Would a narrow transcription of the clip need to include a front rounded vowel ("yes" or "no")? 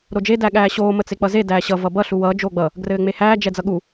no